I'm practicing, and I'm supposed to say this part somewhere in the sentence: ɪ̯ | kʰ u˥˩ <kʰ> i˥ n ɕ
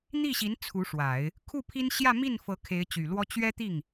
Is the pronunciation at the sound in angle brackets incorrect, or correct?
incorrect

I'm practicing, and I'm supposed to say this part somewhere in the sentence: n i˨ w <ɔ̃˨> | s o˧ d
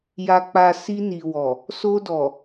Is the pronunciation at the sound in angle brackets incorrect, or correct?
incorrect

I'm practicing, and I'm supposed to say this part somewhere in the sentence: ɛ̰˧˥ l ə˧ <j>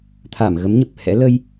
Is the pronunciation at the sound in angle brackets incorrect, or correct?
correct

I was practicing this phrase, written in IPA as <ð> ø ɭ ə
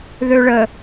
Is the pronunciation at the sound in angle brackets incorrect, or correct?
correct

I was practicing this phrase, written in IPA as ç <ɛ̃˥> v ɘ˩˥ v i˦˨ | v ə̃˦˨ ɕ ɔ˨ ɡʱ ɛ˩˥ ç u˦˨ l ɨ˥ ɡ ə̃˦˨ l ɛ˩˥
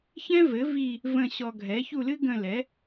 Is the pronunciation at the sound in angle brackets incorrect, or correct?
correct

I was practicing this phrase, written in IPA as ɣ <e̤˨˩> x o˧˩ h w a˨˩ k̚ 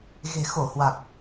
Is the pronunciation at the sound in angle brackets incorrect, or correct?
correct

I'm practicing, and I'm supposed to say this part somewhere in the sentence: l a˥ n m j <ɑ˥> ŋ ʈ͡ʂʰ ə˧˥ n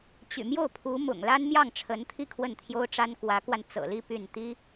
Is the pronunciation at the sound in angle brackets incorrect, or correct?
incorrect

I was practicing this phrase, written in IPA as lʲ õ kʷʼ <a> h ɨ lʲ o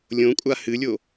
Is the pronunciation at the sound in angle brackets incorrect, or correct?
correct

